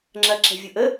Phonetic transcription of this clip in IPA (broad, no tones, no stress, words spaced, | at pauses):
ŋ͡ǁɐǁɛ̤vʲʊ ʔə